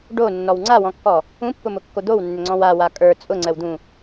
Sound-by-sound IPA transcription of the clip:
ɖ o nː ɔ w ŋ͡ǀ a w ɔ̃ kː ɔ | ũ pː ʊ m ʊ kː o d̪ o w nː ʏ ŋ͡ǀ ɔ̃ w a w a kʼ ə˞ t͡sʼ ʊ ŋ͡ǀ ə w d̪ ũ

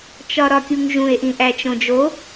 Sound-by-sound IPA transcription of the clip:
t͡ʃ ɒ ɾ ɒ kʲ u ŋ ʒ ũ e̯ ʔ ĩ ʔ æ t͡ʃ õ d͡ʒ o

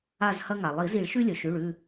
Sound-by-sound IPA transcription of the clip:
a˦˨ z h ɐ˦ ŋ a˩ lˠ i˨˩˦ z i˨˩˦ ɭ ʃ ʉ˦ lʲ ɵ˩ ʃ ʉ˩˧˩ ɭ ʉ˦˨

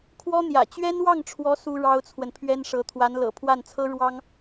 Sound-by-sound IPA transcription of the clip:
kʰ w ɔ˥ n̪ j ä̰˨˩ t͡ɕ ɥ ɛ˥ n w ɑ˥˩ ŋ ʈ͡ʂʰ w ɔ˧˥ s u˥ ɻ ɑ˥ ʊ̯ t͡sʰ w ə˨ n pʰ ɥ ɛ˥ n ʂ ɤ˧˥ t̪ʰ w a˧˥ n l ɤ̰˨˩ pʰ w a˥˩ n t͡sʰ ɤ˥ ɻ w ɑ˥ ŋ

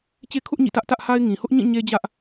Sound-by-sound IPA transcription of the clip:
t͡ɕ e˦ kʰ ʊ˦ ʔ ɲ ḭ˦˨ t ä˦ ʔ t ä˦ ʔ h a˦ ɪ̯ ŋ ĩ˨ h ʊ˦ ʔ ɲ ĩ˦˨ ɲ e˦ d͡ʑ ä˦ ʔ

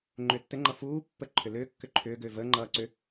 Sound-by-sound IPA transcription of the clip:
ŋ͡ǃ ʏː tː ɘ ŋ͡ǃ ʌ f uː pː ə ǃʰ ʏ l ʏː kː ʏ ǃʰ ʏː ɡ ʏː v əː ŋ͡ǃ ʌː ǀ ʏ

